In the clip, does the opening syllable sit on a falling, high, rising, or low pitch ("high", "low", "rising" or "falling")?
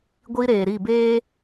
high